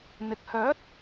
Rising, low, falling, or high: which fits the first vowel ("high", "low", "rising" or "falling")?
low